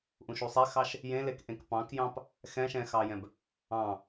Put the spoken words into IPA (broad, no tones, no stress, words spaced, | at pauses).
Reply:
ʔũʃusˤexɑʃ | jẽlek ʔẽkpɑ̃kjɑ̃p | xɛ̃ʃɛ̃xɑjɛ̃b | ɑ̃